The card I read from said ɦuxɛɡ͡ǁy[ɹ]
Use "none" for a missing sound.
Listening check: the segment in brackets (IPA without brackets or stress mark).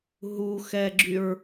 ɹ